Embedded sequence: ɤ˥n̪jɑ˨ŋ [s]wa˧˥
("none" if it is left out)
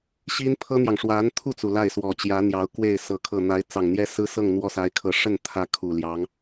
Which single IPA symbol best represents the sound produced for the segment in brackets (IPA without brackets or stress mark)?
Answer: ʂ